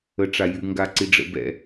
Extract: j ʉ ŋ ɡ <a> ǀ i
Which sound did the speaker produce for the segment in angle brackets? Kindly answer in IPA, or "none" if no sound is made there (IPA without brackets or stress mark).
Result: a